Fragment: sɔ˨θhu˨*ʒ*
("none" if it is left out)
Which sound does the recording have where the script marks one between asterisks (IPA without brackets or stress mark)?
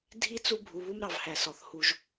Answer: ʒ